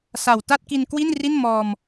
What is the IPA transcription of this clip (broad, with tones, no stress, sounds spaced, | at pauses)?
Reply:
s a˨˩ w t a˥˩ t̚ k i˧ n k w i˥˩ n r i˥˩ n m ɔː˧ m